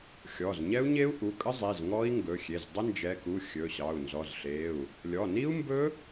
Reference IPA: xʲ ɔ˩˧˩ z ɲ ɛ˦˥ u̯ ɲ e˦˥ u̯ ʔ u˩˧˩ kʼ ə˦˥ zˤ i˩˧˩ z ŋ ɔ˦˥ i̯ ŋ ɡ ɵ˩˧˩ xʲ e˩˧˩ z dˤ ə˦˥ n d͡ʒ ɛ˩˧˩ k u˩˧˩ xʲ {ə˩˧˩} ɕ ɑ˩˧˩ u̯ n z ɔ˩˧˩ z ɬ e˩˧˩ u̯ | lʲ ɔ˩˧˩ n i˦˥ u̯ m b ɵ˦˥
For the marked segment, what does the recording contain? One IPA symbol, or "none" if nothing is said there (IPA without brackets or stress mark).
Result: ɵ˩˧˩